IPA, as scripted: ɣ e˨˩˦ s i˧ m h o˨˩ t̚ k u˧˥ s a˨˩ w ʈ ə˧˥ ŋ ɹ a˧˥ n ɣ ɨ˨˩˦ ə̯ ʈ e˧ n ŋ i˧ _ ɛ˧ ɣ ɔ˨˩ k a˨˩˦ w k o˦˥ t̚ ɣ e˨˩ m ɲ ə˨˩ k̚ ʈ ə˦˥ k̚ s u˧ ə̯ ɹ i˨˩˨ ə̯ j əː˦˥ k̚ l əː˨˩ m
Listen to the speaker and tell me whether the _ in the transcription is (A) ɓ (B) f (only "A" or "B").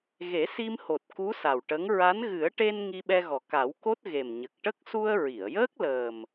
A